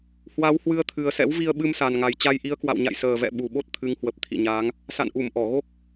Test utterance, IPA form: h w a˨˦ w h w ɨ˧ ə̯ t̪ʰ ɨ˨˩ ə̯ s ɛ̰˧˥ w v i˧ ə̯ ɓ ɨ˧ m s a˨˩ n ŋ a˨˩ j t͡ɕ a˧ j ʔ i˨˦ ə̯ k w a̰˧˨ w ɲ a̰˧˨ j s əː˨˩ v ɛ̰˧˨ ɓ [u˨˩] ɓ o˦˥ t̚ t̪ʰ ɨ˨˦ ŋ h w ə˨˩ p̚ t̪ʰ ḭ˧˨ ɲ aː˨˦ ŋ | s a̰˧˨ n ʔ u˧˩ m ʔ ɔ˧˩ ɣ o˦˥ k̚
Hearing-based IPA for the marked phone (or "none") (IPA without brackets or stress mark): u˨˩